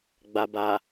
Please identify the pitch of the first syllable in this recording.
low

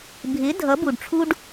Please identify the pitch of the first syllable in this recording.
rising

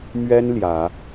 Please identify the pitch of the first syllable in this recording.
high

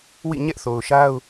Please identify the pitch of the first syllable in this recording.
falling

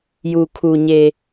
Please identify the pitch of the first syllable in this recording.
low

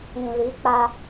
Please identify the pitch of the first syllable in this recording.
low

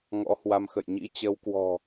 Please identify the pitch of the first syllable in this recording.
rising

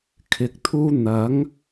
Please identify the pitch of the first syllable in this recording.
low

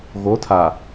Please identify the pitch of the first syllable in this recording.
rising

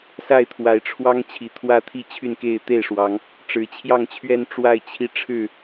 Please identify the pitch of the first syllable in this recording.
falling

